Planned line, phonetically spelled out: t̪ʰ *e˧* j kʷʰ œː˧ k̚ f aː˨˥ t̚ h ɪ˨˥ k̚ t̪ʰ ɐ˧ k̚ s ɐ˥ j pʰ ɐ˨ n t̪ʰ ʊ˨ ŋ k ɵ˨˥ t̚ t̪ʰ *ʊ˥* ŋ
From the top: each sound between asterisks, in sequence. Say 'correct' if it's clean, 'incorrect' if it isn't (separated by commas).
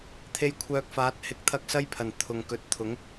correct, incorrect